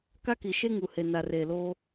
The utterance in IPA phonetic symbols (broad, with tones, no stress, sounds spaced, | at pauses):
k a˦ k i˨ ʃ e˦ ŋ u˨ h e˨ n a˨ r eː˨ l oː˦